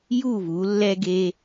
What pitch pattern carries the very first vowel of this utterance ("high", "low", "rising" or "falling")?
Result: falling